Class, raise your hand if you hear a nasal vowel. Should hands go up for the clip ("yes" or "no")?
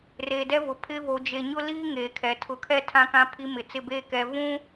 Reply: yes